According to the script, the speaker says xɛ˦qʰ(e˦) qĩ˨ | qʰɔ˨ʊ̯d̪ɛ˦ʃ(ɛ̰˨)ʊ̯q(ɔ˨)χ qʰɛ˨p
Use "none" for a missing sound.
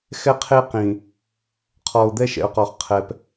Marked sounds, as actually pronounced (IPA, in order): e˦, ɛ̰˨, ɔ˨

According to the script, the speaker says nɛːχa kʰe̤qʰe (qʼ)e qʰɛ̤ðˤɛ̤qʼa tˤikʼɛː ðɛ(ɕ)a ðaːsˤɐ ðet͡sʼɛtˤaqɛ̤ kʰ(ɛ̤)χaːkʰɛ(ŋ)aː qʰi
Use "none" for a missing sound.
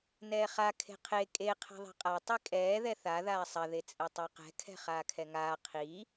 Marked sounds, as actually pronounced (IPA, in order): kʼ, θ, ɛ̤, ŋ

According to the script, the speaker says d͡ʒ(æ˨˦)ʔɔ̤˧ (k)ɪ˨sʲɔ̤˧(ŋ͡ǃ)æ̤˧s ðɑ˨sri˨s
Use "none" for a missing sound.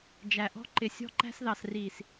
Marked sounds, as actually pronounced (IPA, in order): æ˨, ǃ, ǃ

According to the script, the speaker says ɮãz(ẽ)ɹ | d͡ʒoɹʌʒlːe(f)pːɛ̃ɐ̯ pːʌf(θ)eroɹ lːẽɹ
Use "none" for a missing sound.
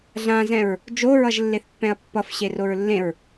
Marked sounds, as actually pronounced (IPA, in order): ɛ̃, θ, ɕ

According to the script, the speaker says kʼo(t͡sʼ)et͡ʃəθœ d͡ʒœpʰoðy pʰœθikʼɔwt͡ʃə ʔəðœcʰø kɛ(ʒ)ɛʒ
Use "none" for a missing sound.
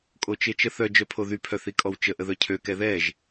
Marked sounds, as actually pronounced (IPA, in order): t͡ʃ, ð

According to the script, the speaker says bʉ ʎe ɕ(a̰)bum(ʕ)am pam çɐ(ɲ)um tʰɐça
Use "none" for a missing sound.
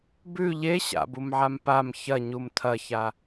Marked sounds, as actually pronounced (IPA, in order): a̰, ʕ, ɲ

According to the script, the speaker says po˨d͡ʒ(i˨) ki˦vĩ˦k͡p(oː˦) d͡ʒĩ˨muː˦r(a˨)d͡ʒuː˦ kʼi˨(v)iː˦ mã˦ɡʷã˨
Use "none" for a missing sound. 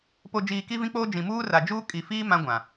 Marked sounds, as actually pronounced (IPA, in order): iː˨, oː˦, a˨, f

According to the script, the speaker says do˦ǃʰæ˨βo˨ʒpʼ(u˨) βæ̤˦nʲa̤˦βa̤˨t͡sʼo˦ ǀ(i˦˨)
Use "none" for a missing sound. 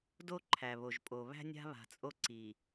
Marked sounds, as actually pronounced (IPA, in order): o˨, i˨

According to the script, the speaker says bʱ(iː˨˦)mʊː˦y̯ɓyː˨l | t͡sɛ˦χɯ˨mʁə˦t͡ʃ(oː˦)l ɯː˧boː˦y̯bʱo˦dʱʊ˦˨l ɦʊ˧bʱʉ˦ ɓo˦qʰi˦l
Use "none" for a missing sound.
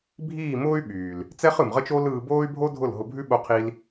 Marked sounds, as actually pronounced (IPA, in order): iː˦˨, oː˦

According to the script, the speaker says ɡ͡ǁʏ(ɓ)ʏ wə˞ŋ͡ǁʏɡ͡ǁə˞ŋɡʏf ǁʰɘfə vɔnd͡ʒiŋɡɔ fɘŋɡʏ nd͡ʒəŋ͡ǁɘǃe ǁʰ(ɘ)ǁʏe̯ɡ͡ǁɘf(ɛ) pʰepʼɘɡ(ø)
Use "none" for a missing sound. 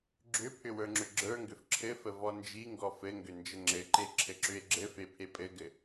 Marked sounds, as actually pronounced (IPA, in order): pʰ, ɘ, e, ɘ

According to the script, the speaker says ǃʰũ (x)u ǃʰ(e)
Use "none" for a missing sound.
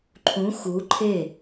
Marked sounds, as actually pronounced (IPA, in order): x, e

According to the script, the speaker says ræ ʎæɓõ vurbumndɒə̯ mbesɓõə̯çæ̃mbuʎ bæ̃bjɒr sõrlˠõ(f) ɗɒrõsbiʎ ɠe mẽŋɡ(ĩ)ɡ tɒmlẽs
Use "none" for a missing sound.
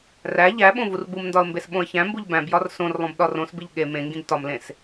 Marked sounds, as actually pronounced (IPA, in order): b, ĩ

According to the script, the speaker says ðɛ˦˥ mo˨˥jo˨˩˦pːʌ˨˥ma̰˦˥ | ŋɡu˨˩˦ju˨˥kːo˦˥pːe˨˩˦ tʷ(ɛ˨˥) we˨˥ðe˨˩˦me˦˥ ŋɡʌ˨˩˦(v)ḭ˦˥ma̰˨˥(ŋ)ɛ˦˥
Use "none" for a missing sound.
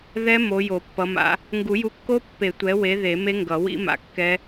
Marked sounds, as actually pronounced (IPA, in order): ɛ˨˥, w, kː

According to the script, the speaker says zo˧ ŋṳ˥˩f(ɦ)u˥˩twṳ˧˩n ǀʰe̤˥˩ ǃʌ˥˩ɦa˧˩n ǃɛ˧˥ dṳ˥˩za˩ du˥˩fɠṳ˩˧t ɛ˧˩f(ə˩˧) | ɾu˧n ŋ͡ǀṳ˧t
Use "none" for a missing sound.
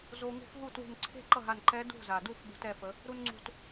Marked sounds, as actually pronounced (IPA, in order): ɦ, ə˩˧

